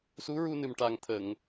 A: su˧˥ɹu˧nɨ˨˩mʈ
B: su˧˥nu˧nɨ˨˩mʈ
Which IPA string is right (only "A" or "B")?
A